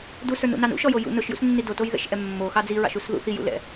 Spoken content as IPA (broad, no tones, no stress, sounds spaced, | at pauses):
d u s ə˞ n ṵ n ɑ n ṵ ʃ ɔ j o j ṵ n ʊ ʃ j ṵ s nː i d o t o j ð ɛ̰ ʃ ʔ ɛ mː o x ɑ d͡z i ɹ ɑ̰ ʃ u s ð ṵ θ i j ṵ l ɛ̰